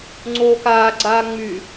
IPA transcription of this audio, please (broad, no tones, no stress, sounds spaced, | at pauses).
ŋ͡ǀ oː k aː ɡ͡ǀ aː ŋ͡m y